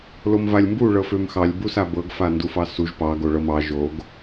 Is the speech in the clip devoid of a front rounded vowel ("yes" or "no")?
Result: no